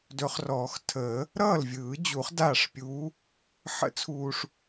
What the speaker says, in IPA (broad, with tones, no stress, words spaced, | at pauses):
dɵ˨˩˦χrɔː˨˩˦xtʰəː˨˩˦ | ɾʌː˥˩lvʲɯː˨˩˦d͡ʑu˨˩˦χ daː˥˩ʂpʲuː˧˥ | ħə̰˧˥t͡sʰuː˨ʂ